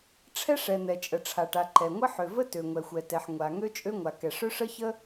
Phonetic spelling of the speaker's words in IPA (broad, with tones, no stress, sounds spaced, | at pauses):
ʈ͡ʂʰ ɛ˥ ʂ ɛ˩ n̪ ɛ˩ t͡ʃʼ ə˩ ʈ͡ʂʰ a˩ ʈ a˩ ǃ ɛ˩ ŋʷ ə˥ ħ ø˩ v ə˥ t ø˩ ŋʷ ɛ˩ xʷ ɛ˩ t ɛ˩ ħ ŋʷ a˩ ŋ ø˥ t͡ʃʼ ø˥ ŋʷ a˩ k ɛ˩ ʂ ø˥ ʂ ə˥ ç ə˥